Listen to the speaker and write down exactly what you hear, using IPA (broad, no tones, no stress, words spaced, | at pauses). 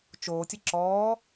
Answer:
t͡ʃoːtʲɘ ǁɔː